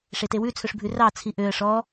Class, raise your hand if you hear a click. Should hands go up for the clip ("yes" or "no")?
no